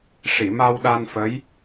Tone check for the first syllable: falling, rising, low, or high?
low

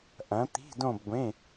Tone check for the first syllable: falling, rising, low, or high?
rising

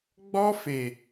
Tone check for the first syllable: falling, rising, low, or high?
high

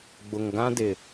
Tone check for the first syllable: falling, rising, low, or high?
low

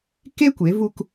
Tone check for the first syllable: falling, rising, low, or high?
high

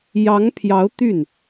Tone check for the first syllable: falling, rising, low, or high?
rising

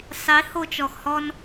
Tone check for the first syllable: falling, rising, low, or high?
rising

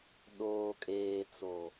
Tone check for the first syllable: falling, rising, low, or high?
low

